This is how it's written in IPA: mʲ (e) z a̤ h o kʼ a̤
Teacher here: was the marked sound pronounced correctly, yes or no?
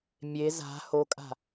yes